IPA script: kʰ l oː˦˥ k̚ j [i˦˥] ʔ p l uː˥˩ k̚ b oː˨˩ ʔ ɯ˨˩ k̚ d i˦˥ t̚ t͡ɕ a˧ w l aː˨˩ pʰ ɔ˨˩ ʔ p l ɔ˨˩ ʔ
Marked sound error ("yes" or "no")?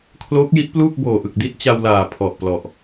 no